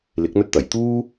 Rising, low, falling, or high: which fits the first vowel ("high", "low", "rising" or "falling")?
rising